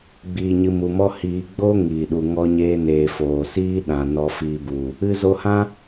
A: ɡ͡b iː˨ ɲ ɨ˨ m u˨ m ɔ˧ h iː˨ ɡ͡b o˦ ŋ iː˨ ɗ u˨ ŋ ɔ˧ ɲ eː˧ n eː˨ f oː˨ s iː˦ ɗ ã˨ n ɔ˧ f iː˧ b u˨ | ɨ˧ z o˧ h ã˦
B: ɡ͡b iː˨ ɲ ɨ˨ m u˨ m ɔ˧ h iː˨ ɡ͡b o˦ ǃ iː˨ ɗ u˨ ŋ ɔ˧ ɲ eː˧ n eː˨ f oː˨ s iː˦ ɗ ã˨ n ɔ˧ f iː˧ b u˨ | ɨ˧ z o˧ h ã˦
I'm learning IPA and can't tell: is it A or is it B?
A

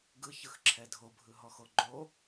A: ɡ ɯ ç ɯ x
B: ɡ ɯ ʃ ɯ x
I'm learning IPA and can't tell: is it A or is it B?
A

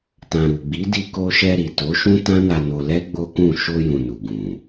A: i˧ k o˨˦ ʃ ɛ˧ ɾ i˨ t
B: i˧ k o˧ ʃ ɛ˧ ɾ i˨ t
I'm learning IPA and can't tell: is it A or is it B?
B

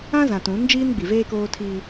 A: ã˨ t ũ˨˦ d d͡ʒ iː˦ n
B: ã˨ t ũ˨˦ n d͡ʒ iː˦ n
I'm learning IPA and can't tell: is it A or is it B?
B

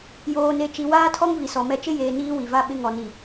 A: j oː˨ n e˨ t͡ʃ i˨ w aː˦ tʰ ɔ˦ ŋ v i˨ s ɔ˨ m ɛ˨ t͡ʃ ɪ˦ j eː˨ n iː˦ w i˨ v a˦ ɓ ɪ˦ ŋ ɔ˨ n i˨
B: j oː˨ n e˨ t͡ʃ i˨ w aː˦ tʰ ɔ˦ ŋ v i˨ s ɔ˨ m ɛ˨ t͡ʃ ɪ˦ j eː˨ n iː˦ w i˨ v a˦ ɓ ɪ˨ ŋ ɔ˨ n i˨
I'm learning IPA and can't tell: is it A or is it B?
A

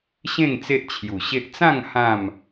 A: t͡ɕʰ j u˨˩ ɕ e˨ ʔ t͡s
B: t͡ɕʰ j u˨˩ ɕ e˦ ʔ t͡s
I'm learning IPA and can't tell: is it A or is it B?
B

